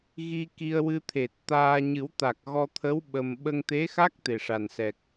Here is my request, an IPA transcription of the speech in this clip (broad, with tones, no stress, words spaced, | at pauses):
ɣi˧ki˧ə̯ wɨ˧t̪ʰe˨˩t̚t̪aː˧ ɲɨ˨˩˦wt̪a˨˩k̚ɣɔ˧t̪ʰə˧˥w ɓə˧m ɓə˧ŋt̪e˧˥xa˦˥k̚ t̪e˨˩ʂa˨˩nsɛ˨˩k̚